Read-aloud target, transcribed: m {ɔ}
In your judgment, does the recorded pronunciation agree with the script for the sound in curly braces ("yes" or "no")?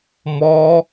yes